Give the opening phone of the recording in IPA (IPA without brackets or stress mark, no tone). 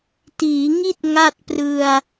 t